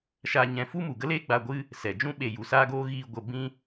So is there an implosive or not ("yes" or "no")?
yes